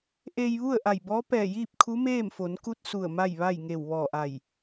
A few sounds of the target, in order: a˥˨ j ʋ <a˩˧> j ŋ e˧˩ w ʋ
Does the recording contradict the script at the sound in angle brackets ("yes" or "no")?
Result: yes